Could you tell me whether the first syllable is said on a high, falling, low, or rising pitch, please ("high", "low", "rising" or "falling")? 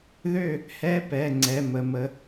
falling